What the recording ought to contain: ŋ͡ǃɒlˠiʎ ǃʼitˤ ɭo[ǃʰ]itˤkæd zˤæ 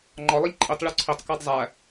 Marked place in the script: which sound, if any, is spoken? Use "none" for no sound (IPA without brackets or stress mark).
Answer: ǀʰ